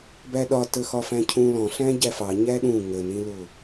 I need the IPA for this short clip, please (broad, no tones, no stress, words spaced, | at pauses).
bæɗɒtə xɒfæ̃cʰũ lɔ̃ɬæ̃ ɟæfɑ ɲæɗũ ŋənĩlʊ